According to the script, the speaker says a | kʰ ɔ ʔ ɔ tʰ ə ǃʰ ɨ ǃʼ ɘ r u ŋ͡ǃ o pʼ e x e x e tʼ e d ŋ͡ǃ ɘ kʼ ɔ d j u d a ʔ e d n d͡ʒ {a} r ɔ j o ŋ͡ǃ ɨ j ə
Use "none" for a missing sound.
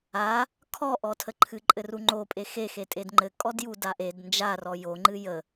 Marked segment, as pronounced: a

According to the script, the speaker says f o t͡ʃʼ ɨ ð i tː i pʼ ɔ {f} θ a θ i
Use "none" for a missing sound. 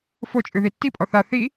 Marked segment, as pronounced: none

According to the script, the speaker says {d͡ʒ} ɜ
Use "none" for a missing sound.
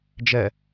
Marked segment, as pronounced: d͡ʒ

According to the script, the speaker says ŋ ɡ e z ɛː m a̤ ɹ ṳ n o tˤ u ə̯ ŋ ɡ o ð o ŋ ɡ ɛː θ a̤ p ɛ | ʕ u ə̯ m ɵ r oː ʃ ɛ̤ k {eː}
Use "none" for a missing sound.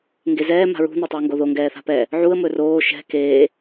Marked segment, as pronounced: eː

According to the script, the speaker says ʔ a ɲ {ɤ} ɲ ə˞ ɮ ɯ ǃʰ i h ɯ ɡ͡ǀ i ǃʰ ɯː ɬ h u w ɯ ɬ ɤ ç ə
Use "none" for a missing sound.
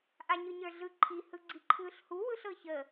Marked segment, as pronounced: ɯ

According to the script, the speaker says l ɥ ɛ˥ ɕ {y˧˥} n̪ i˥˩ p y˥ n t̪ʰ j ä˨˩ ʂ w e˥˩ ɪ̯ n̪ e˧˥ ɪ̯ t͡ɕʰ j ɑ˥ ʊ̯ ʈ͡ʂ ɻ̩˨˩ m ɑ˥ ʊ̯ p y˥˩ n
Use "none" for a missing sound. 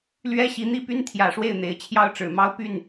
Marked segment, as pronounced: i˧˥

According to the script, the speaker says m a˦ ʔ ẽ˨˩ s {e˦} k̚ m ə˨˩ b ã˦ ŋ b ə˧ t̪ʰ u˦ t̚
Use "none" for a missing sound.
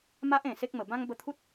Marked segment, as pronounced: e˦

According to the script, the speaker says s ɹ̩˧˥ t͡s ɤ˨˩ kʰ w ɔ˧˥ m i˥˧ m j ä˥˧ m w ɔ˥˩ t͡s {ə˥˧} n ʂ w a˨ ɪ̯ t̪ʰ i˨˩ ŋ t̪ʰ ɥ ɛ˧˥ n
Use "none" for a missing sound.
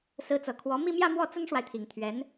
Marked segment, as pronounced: ə˥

